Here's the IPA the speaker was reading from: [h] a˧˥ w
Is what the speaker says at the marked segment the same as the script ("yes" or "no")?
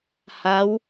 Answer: yes